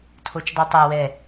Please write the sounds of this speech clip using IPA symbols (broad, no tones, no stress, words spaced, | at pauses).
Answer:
tʰot͡ʃdˤɯtˤæ wɛ